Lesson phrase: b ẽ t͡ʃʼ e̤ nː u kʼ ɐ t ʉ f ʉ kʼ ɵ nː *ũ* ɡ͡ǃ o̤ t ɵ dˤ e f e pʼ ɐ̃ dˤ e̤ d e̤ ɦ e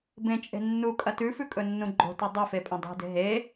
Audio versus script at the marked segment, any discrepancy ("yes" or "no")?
no